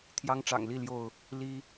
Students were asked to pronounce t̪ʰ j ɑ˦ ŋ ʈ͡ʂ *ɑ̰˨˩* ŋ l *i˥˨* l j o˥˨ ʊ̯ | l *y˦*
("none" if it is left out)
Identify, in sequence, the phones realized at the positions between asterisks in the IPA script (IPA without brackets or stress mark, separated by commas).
ɑ̰˨˩, i˥˨, i˦